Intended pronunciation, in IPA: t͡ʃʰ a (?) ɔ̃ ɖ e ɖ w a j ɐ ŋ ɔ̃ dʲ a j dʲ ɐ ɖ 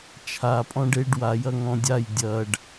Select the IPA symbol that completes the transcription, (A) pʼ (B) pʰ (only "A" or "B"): A